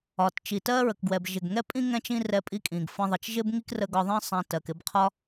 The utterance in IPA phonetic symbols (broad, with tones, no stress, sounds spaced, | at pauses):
ɒ˩ t t͡ʃ i˩ t ɜ˥ ɹ ə˩ k ɡ w ɛ˩ b ʒ ɪ˩ ɡ ŋ ɛ˥ pʼ ĩ˥ ŋ ɛ̃˥ t͡ʃ ĩ˥ r ɛ˧ pʼ i˧ kʼ ĩ˩ ɡ f ə̃˧ ðˤ ə˩ t͡ʃ ʒ ɪ˥ b ŋ i˥ k r ə˧ ɡ ɒ˧ ðˤ ĩ˥ sˤ ɛ̃˧ t ɜ˩ k ɪ˧ b qʰ ɒ˥